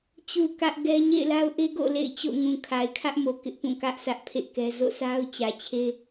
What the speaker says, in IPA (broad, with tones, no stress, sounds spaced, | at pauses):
t͡ɕ u˨ k ä˦ ʔ ɡ ɛ˦ ɲ ḛ˦˨ ɪ̯ l a˦ ʊ̯ ʔ e˦ ɡ o̰˦˨ l ḛ˦˨ ɪ̯ t͡ɕ o̰˦˨ ŋ ũ˨ kʰ a˨ ɪ̯ kʰ ä˦ ʔ m o˨ k ɪ˦ ʔ p ũ˦˨ k ä˦ ʔ s ä˦ ʔ pʰ ḛ˦˨ k ɛ˦ z o̰˦˨ s a˦ ʊ̯ t͡ɕ ä˨ t͡ɕʰ e˦